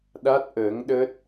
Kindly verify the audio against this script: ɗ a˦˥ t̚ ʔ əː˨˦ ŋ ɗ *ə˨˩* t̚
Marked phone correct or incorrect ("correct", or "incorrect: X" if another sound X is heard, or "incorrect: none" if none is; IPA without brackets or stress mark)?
incorrect: ə˦˥